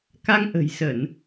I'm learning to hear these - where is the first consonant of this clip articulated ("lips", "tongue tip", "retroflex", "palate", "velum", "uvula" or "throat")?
velum